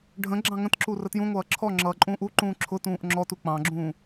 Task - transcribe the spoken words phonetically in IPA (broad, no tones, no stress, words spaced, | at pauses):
ɖʱə̃ ɡ͡ǁɑ̃ŋə̃tǁu rətjũŋʷʌː ǁʰɔ ŋ͡ǁʌːǃʼũːʔuǃũː ǁʰʊtũːʔ ŋ͡ǁɔtu k͡pɑ̃ɡ͡ǁũː